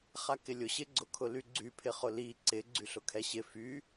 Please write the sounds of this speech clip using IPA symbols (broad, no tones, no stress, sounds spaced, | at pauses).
χ a k ɪ lʲ ʊ ɕ ɪ ɡ͡ǀ ʊ kʰ ʊ l y ɡ͡ǀ y pʰ ɪ χ ʊ l i ǀ ɪ ɡ͡ǀ y ɬ ʊ kʰ ɛ ɕ ɪ f y